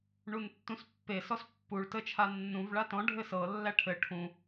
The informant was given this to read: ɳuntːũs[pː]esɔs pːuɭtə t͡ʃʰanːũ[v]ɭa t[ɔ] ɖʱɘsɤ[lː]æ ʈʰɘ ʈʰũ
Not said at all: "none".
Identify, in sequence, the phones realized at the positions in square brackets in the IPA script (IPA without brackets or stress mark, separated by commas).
pː, v, ɔ̃, lː